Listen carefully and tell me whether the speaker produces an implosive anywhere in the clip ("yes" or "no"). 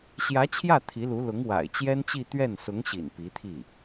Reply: no